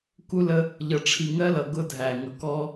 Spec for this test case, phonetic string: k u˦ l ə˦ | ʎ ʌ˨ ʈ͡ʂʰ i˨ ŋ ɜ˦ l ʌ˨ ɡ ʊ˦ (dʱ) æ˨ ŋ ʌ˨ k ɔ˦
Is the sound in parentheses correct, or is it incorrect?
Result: correct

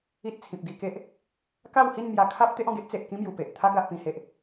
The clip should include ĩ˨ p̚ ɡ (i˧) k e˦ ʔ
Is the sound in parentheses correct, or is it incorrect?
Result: correct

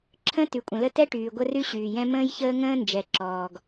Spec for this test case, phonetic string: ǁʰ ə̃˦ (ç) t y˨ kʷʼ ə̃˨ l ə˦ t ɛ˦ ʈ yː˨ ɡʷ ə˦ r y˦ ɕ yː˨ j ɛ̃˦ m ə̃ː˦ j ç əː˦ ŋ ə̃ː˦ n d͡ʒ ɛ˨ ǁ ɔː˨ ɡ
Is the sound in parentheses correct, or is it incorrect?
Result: incorrect: none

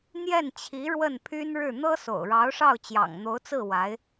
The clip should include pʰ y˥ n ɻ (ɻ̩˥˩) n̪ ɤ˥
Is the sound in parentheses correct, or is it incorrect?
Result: correct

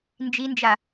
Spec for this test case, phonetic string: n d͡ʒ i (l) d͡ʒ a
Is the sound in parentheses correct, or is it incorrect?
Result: incorrect: n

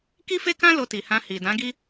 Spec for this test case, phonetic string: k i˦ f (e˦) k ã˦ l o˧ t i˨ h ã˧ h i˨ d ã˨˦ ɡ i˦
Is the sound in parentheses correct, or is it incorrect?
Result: correct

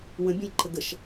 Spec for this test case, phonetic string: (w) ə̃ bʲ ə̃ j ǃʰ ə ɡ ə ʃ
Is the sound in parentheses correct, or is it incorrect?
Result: correct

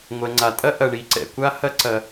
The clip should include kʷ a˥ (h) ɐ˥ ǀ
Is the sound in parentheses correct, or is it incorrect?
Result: correct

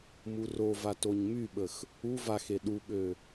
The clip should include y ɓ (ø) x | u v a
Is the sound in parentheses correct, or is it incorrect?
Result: incorrect: ə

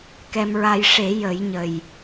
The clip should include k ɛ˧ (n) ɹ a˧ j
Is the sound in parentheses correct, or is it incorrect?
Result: incorrect: m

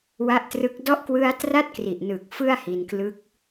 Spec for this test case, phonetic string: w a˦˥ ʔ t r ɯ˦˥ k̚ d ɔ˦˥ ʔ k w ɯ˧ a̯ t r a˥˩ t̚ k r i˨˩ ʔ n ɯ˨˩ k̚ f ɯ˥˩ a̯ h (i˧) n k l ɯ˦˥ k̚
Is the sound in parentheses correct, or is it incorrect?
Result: correct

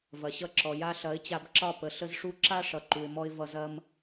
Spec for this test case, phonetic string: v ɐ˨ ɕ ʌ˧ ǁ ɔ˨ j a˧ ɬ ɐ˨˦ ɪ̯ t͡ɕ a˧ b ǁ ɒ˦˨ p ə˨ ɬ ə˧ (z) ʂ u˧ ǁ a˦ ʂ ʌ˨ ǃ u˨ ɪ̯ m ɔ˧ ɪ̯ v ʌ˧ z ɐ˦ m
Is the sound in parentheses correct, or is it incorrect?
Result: correct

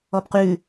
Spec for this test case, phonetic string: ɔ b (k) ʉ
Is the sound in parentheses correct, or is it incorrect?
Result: incorrect: q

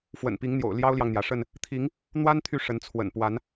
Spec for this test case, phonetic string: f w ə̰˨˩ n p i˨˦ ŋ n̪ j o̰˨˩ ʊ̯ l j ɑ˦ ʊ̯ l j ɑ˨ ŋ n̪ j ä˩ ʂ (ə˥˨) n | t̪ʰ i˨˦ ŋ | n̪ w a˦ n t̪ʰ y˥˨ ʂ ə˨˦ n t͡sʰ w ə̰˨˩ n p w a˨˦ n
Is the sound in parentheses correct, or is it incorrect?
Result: correct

